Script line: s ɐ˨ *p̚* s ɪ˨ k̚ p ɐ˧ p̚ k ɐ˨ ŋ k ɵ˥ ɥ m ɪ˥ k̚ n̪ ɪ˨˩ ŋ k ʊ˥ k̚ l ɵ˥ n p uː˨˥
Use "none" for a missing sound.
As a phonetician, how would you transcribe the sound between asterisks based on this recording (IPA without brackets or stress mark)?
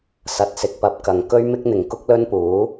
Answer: t̚